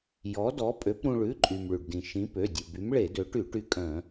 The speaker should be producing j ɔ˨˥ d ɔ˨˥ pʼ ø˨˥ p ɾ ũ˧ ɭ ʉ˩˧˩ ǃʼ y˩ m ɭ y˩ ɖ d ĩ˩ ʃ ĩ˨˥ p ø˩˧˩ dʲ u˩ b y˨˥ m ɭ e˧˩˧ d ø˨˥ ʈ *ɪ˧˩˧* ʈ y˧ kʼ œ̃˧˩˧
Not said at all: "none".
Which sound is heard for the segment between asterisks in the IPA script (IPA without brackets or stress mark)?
y˧˩˧